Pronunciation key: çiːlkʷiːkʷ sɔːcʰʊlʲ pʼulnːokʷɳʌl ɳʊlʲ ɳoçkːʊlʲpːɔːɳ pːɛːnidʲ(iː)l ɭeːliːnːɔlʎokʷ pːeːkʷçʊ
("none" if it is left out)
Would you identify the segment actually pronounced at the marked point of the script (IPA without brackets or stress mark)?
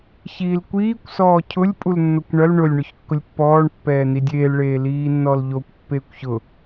eː